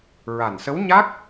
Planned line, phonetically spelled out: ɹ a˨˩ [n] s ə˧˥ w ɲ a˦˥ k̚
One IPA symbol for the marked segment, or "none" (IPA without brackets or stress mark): n